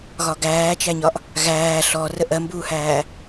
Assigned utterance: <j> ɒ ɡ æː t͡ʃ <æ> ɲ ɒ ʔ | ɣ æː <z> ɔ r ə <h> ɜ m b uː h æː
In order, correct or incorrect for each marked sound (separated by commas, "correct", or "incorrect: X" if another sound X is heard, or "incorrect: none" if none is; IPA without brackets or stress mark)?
incorrect: ɣ, correct, incorrect: ɬ, incorrect: ʔ